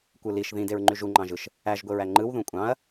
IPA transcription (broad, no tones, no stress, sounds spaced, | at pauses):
kʷ ɯ l i ʃ ð ĩ d e ɹ ŋ͡ǃ y ʒ u ŋ͡ǃ ɑ̃ ʒ ɯ ʃ | æ ʒ ɡʷ e ɹ æ ŋ͡ǃ ɯ w ð ũ kʷʼ ɑ̃ ɐ̯